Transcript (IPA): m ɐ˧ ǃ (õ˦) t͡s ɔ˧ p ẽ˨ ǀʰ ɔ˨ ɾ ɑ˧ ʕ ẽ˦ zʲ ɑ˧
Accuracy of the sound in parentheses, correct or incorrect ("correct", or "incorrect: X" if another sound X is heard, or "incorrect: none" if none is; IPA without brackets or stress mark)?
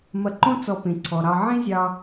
correct